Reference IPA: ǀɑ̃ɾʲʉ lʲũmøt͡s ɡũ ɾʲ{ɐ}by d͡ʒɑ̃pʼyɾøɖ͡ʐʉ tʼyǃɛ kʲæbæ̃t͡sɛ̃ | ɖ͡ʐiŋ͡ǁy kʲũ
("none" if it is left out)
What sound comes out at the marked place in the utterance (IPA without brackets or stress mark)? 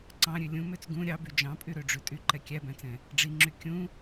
ɑ